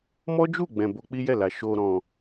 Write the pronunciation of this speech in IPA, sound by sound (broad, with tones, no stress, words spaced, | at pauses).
mɔ˦ d͡ʒu˦˨ɡ͡bɛ̃˨ bo˧k͡pi˦jɛ˦˨la˨ ʃo˨ɾɔ̃˨